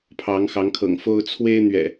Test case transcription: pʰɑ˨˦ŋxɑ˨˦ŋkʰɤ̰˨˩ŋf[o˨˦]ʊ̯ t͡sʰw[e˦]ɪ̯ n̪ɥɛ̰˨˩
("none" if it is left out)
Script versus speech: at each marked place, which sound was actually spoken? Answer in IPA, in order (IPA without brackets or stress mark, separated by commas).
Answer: o˦, e˦